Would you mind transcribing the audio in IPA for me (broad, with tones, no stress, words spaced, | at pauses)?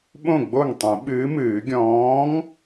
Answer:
ɓõ˥˩ɡ͡bo˥˩ŋ tˤĩ˨˩˦ɓɨː˨˥mɨː˨˩˦ ɡʲɔ̃ː˨˥ŋ